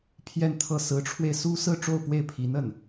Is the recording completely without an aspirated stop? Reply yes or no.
no